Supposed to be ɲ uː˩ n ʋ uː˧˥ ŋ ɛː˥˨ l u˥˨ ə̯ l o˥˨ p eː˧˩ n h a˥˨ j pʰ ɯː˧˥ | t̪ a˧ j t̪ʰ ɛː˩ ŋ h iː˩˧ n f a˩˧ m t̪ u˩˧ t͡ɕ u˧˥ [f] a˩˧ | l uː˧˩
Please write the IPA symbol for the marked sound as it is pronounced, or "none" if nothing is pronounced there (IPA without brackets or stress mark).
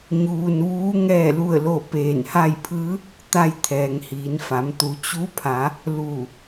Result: pʰ